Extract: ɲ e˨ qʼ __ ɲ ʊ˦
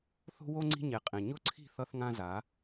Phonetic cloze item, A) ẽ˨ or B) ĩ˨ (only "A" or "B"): A